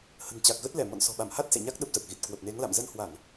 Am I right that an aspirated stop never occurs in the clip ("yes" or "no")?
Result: yes